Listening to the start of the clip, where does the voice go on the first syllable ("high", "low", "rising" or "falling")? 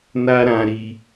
high